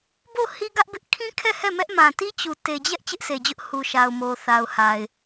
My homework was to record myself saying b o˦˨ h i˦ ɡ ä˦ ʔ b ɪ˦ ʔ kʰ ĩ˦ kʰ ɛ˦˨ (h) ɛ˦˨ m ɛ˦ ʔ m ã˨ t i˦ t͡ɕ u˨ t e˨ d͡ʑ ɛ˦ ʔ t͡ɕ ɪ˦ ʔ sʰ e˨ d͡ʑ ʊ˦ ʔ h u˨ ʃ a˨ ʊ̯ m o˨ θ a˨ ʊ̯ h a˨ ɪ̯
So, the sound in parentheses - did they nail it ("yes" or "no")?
yes